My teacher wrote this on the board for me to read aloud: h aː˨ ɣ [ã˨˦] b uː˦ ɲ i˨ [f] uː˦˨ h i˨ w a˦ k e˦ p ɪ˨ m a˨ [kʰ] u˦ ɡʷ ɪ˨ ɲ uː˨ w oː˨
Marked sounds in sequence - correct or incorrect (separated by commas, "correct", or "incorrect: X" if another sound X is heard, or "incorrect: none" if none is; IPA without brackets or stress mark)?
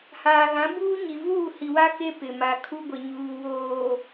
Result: correct, incorrect: v, correct